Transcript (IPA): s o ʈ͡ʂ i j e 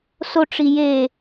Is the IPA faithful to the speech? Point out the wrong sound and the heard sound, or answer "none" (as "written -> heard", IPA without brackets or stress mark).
none